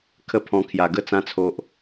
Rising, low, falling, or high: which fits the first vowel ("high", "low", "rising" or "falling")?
high